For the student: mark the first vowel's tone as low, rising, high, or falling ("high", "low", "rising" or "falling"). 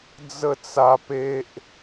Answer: falling